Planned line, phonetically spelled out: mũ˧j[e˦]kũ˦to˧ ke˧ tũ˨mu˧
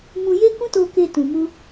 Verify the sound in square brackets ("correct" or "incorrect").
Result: correct